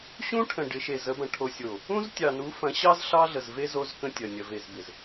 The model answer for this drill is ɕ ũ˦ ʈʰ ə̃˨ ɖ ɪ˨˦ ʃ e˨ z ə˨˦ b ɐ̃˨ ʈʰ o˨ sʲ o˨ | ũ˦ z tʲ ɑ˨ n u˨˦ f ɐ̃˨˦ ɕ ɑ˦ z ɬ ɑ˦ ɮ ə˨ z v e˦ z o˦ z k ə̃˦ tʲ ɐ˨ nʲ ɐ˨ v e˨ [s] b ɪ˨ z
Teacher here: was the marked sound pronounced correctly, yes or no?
no